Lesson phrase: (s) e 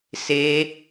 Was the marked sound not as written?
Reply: no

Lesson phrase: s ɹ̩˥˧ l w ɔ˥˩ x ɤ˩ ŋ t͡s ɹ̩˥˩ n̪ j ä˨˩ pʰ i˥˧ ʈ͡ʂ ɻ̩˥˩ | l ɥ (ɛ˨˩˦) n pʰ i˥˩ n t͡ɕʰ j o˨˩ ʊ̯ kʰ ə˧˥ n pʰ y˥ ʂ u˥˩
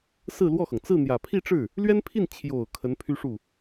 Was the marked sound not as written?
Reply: yes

